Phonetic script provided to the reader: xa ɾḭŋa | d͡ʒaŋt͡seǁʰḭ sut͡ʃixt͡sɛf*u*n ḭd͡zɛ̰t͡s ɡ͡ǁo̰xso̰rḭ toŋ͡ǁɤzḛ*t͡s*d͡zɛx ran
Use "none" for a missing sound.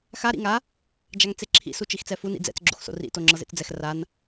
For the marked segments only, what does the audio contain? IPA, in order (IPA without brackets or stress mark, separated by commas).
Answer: u, t͡s